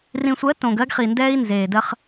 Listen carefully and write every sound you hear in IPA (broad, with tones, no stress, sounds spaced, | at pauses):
r ĩ˨ sʷ ɜ˨˦ t õ˨ ɡ ɜ˦ ɡ χ i˨ n d ɛː˦ i̯ n z eː˨ d ɜ˦ χ